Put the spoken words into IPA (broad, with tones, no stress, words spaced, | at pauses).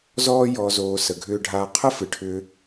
zɔː˦jɔ˧zoː˧ sə˧ɡʱʏː˦ ɖʱaː˧qʰə˦fɨ˨ʈʰʏː˧